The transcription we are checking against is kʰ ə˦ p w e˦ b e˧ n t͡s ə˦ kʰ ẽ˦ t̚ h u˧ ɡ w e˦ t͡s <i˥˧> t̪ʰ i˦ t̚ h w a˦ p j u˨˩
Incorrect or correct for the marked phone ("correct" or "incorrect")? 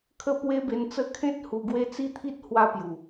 correct